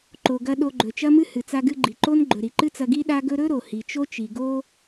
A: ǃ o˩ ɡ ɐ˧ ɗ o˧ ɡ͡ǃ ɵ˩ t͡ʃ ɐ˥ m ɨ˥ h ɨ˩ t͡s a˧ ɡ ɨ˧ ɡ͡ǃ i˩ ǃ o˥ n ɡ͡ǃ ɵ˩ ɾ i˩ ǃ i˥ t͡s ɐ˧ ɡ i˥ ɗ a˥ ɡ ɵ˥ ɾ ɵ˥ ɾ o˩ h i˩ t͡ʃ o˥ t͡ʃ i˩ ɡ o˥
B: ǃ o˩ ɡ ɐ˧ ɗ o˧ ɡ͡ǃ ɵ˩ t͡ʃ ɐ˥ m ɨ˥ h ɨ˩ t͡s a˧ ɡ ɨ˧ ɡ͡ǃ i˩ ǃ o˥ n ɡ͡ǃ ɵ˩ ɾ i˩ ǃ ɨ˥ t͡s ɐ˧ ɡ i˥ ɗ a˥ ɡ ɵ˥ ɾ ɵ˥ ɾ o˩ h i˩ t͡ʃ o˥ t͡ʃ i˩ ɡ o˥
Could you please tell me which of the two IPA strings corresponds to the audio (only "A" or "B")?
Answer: B